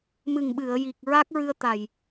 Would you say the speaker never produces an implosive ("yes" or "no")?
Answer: no